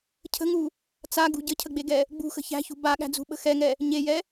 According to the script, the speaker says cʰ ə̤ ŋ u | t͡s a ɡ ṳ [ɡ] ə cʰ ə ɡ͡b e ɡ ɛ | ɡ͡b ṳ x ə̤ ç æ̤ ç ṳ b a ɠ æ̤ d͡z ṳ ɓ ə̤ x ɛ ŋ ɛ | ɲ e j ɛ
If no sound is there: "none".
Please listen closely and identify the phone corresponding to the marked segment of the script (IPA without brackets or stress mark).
ɟ